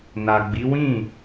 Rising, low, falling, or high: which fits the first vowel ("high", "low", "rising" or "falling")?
low